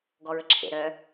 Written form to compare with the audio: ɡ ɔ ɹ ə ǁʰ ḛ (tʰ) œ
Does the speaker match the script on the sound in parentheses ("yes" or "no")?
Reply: no